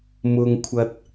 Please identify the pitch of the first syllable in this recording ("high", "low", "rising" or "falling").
low